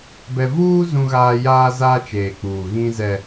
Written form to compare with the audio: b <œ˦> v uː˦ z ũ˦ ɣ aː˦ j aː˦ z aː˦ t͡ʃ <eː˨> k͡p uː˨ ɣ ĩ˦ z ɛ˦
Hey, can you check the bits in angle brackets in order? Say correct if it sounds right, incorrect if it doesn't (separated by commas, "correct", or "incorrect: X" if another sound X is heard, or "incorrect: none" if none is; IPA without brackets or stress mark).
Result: incorrect: ɛ˦, correct